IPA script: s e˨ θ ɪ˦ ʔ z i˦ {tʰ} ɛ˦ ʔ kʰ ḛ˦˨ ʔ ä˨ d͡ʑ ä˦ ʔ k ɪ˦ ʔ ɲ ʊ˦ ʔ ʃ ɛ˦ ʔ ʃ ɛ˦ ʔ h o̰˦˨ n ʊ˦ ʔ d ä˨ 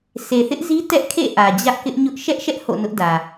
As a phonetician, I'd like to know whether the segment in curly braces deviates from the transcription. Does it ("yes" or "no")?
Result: yes